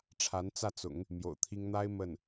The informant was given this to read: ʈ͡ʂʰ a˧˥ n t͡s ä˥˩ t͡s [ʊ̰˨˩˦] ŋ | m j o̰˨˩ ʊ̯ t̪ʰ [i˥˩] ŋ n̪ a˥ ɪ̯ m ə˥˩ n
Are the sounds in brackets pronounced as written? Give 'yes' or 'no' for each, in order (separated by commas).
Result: yes, no